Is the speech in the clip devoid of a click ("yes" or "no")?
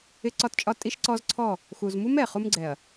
no